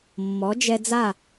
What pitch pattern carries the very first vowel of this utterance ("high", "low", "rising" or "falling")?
rising